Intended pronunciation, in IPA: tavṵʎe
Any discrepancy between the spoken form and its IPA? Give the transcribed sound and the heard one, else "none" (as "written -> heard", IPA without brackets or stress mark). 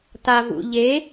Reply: none